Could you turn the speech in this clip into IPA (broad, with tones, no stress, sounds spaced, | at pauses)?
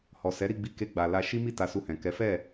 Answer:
h ɔ˨ s ɛ˨˦ ɾ i˦˨ ɡ͡b i˧ k e˧ ɡ͡b a˨ l a˧ ʃ i˦ m i˦˨ t a˧ s u˧ h ɛ̃˨ k ɛ˨˦ f ɛ˦˨